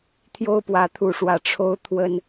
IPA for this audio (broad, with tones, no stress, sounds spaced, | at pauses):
t̪ʰ j o˦ ʊ̯ p w ä˨˦ t̪ʰ u˨˩ ʂ w ä˨˦ ʈ͡ʂʰ o˦ ʊ̯ t̪ʰ w ə˦ n